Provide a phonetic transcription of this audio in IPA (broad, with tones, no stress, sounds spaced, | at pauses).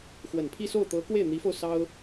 x w ə˨˩ n pʰ i˥˧ s o˥˩ ʊ̯ t̪ ɤ˧˥ k w e˥˩ ɪ̯ n̪ i˧˥ f o˧ ʊ̯ s ɑ˥ ʊ̯